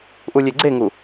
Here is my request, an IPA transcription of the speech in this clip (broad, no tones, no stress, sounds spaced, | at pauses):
ʔ u lʲ e ɡ͡ǀ e ŋ u